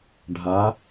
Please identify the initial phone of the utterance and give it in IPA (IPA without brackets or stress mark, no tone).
ɖʱ